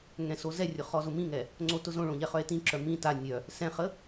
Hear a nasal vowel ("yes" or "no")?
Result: yes